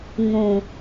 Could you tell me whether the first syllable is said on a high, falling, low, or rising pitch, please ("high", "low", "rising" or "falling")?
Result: low